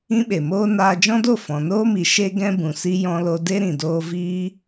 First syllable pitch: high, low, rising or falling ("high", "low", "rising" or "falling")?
high